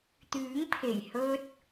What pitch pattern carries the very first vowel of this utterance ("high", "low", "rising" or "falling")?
rising